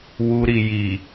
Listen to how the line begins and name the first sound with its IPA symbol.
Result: w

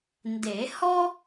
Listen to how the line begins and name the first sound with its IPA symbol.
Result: n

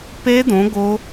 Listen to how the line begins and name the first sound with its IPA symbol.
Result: p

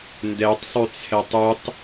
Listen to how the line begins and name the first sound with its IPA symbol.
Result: n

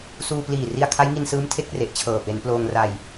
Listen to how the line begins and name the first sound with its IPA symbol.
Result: s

